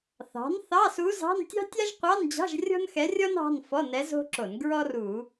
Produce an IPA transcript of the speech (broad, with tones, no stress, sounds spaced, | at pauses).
θ ɑ̤˩˥ n θ ɑ˧˥˧ s u˧˥ z ɑ̤˧˥˧ n tʲ ɑ̤˥ tʲ a˥ ʒ qʷ ɑ˧˥˧ n d͡ʑ ɑ̤˧˥˧ ʒ rʲ ɔ̤˥ n x ɛ˧˥ rʲ ɔ˥ n ɑ̤˧˥˧ n f ɔ˧˥˧ n ɛ˧˥ z o̤˥ ǁ o˧˩˧ n ɡ ɹ ɔ˥ r u˧˩˧